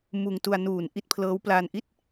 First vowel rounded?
yes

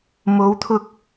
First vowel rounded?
yes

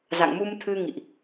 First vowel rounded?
no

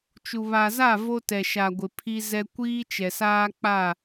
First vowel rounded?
yes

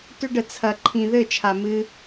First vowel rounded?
yes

